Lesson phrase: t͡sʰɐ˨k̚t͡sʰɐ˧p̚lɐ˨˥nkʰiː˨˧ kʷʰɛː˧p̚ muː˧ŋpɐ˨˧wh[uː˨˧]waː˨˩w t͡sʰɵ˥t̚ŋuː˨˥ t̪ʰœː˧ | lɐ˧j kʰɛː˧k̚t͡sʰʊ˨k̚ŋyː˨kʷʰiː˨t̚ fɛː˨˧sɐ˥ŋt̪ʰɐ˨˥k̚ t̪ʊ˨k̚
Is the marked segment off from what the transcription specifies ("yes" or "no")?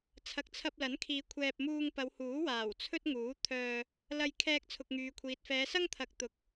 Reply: yes